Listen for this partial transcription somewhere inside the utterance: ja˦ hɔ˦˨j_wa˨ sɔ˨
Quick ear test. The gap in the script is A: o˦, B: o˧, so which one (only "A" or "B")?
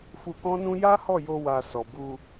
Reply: B